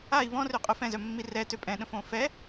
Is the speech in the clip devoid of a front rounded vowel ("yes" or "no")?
no